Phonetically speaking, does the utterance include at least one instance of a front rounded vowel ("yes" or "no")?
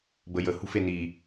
no